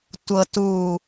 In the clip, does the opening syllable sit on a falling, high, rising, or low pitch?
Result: low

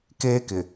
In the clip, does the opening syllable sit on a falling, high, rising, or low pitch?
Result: high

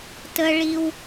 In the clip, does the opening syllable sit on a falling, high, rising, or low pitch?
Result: high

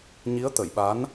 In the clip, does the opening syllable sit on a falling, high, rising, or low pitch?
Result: rising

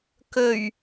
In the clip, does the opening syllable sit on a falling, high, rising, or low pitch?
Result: low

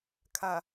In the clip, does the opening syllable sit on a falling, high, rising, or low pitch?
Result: low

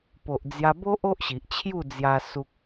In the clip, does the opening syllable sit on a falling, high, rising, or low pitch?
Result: low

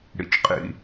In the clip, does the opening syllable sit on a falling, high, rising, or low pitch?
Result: low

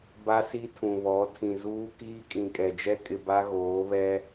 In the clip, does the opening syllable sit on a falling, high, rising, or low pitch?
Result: high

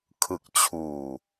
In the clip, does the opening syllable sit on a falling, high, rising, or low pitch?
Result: low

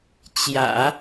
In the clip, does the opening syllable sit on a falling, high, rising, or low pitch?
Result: low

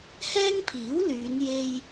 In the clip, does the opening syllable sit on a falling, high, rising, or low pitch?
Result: high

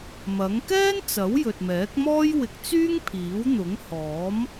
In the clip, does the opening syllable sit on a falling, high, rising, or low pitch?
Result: rising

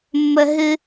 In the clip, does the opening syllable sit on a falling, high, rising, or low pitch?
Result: high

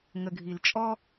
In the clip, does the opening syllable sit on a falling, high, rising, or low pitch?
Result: low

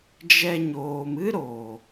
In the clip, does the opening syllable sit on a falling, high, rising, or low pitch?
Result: high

